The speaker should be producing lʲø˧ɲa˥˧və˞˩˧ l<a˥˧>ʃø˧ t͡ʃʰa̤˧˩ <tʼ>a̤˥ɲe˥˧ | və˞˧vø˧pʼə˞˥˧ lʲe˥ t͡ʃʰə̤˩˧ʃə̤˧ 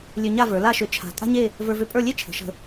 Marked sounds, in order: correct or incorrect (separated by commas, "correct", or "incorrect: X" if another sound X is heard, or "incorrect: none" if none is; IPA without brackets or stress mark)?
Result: correct, correct